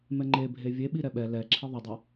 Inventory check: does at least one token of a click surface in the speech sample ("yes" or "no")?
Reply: yes